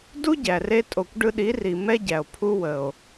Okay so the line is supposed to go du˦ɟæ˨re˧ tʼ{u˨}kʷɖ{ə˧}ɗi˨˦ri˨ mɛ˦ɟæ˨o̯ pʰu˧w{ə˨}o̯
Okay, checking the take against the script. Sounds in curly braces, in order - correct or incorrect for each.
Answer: incorrect, incorrect, correct

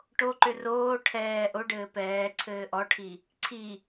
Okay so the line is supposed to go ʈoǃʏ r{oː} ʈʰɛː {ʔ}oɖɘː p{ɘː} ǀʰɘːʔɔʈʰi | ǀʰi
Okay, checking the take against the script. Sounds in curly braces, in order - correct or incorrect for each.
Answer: correct, correct, incorrect

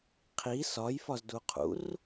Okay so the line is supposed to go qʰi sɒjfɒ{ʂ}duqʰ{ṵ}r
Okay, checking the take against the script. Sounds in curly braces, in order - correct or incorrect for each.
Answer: incorrect, correct

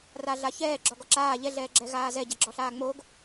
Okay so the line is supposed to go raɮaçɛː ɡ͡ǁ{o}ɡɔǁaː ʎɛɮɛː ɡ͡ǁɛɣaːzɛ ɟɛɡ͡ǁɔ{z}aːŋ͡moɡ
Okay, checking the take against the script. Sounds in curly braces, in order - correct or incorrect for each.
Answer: incorrect, incorrect

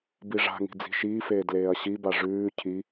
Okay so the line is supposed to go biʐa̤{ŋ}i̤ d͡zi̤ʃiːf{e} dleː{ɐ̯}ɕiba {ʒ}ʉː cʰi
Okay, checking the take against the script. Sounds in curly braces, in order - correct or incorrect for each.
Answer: correct, incorrect, correct, incorrect

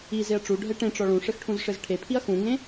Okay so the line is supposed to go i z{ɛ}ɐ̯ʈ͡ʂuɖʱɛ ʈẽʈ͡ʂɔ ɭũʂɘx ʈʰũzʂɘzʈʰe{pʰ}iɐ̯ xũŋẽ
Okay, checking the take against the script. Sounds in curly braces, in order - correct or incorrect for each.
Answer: incorrect, correct

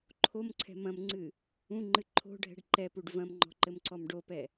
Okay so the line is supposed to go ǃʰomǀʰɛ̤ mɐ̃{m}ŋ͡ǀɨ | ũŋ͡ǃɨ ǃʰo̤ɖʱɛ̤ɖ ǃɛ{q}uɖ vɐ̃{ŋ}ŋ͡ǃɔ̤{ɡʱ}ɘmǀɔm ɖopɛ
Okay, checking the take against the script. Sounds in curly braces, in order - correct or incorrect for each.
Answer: correct, incorrect, incorrect, incorrect

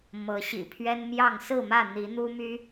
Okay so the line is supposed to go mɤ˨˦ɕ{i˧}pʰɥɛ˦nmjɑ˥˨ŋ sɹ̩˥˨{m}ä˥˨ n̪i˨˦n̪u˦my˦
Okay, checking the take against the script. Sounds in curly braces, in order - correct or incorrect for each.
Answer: incorrect, correct

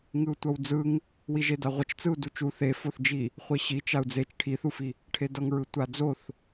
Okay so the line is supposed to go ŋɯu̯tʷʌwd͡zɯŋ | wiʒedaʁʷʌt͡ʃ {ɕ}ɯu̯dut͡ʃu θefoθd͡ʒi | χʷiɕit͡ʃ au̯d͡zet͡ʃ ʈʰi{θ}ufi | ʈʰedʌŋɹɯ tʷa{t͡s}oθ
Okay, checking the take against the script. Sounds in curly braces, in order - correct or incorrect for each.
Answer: incorrect, correct, incorrect

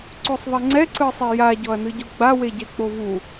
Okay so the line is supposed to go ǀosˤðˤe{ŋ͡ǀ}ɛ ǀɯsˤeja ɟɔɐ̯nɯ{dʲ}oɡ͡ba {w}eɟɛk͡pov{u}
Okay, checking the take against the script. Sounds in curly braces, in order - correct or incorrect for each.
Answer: correct, incorrect, correct, correct

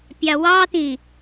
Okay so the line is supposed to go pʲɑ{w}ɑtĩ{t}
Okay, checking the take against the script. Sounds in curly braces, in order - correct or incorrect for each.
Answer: correct, incorrect

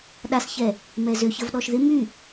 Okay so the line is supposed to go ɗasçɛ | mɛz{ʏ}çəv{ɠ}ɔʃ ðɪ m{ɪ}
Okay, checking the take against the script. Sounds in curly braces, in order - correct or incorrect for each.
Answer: correct, incorrect, incorrect

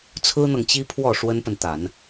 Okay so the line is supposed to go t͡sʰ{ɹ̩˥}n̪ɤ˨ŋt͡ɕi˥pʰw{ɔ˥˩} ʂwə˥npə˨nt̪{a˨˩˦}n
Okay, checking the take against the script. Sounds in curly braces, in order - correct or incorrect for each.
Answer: correct, correct, correct

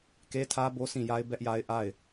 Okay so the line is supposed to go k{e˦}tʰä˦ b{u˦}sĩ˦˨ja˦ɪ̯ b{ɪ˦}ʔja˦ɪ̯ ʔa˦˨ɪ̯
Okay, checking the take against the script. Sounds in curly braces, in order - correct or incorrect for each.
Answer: correct, incorrect, incorrect

